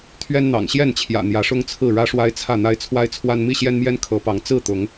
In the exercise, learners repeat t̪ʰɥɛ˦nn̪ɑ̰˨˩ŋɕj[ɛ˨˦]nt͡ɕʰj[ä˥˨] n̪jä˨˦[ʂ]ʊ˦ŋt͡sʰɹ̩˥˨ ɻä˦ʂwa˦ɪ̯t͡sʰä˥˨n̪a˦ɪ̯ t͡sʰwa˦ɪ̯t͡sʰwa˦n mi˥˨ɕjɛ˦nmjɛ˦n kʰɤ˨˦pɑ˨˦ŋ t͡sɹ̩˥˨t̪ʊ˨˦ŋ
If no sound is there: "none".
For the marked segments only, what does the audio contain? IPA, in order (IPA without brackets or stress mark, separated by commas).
ɛ˥˨, ä̰˨˩, ʂ